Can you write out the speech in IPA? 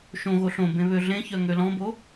ʃ õ ɣ o ɬ õ b ẽ β ø ɮ ẽ ç œ ŋ ø l ɔ̃ b o

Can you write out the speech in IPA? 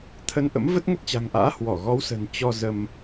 t̪ʰ ə˧ n ʔ ə̰˧˥ m v ə˦˥ t̚ ŋ ə˦˥ t̚ t͡ɕ a̤˨˩ ŋ ʔ a̰ː˧˥ h w ɔ˧˩ ɣ ɔ˨˦ w s ə̤˨˩ n t͡ɕ ɔ˧ z ə˧ m

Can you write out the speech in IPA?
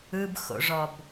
ɯ b x o̰ ʐ ɔ b

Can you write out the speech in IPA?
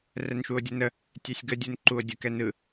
r ɛ n ʃ u o̯ dʲ ə n ə | tʲ ɛ sʲ ɡ ə dʲ u n ǃ u o̯ dʲ ə k ɛ n ɯ

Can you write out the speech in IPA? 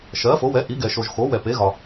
ʃ ɜ˨˥ f o˨˥ w ɛ˨˥ ʔ i˨˥ ɡ ɛ˨ ʃ o˨ ʒ x o˨˥ w ɛ˨ p e˨˥ ɣ ɒ˨

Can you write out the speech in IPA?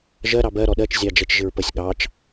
ʒ ɜ ɾ ɑ b ɜ ɾ ɔ ɗ ɜ t͡ʃ zʲ ɑ d͡ʒ ɛ t͡ʃ ʒ ɪ ɹ p ə sʲ ɠ ɑ t͡ʃ

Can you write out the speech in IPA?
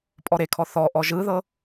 pʼ ɔ ɾ e kʰ ɔ θ ɔ ʔ ɔ ʒ ɯ ð ɤ

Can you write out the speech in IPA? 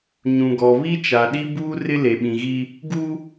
ɲ ũ˨ ɡ ɔ˨ β i˦ t͡ʃ a˨ ɗ i˦ b uː˦ r ɪ˦ l e˨ ɓ ĩ˨ ɣ i˦ | ɡ u˦

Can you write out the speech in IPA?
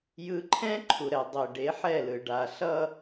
j ɯ˦ ǃʰ ɛ̃˦ ǃʰ u˨ ɾ ɛ˨ dˤ i˨ ɖ e˨˦ ħ ɛ˦˨ l ɯ˨ ɖ a˨ ɬ ʌ˦

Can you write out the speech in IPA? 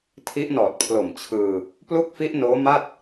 tʰ i˦˥ ʔ n ɔː˨˩ t̚ pʰ l o˨˩ m t͡ɕʰ ɯː˧ | p l u˥˩ k̚ f i˦˥ ʔ n oː˦˥ m a˥˩ t̚

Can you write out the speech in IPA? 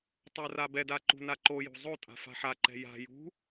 tˤ o r a b ɛ d a ǃ ṳ n a ǃ o j ṳ zˤ o tʼ a̤ f a̤ ħ a ǃ ɛ̤ j a̤ j ṳ

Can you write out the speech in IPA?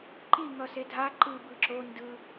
ǃ i ŋ ʌ s e dʱ a ǃ ɯ b ɯ ǁ o n d ɯ

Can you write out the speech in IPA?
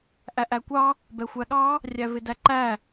ʔ æ ʔ æ kʷ ɑ | b ɛ xʷ æ ɠ ɑ | rʲ æ v ɪ d æ ǃ æ

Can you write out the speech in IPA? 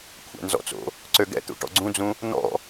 kʷʰ ɛ̰ n z ɔ̰ t͡s o̰ | ǀ ø ɡ ɛ̰ t̪ ṵ ʈ ɔ̰ ɡ͡ǀ ũ d͡z ũ | n̪ ɔ̰

